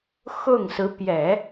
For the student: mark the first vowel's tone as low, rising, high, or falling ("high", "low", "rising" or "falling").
falling